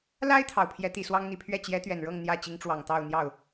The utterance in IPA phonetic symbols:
l a˥ ɪ̯ t̪ʰ ɑ˨˩ ʊ̯ pʰ j ɛ˧˥ t̪ i˨˩ s w ɑ˥ ŋ n̪ i˨˩ pʰ ɥ ɛ˥˩ t͡ɕ j ɛ˧˥ t̪ ɥ ɛ˨˩ n ɻ ɤ˥˧ ŋ n̪ j ä˥˩ t͡ɕ i˧˥ ŋ ʈ͡ʂ w ɑ˨˩ ŋ t̪ ɑ˥˧ ʊ̯ n̪ j ɑ˥˩ ʊ̯

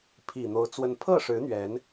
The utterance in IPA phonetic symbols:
pʰ i˨˩ n̪ o˨˦ ʊ̯ t͡s w ə˨˦ n pʰ ɤ˥˨ ʂ ɻ̩˨˦ n̪ ɥ ɛ˨˦ n

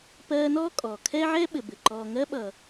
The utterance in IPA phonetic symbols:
p ɜː˦ n ɔː˥ kʼ ɔː˩ kʰ ɛ˥ ʕ ɛ˥ ɓ ɘ˩ b ɘ˩ ǃ ɔː˨ ŋ ɜ˦ ɓ ʌ˩

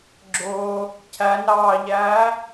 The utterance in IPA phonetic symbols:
ɡ͡ǁ ʊː | cʰ æ n ɾ ɑː ʎ æː

